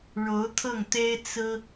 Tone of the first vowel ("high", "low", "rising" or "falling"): rising